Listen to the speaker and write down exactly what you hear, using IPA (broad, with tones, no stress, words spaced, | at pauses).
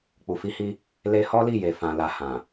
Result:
k͡pu˨fi˧hi˧ | le˧hɔ˦li˦˨ je˨ fã˨la˨ hã˨